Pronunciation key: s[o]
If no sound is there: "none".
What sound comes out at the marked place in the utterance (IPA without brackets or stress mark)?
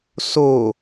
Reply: o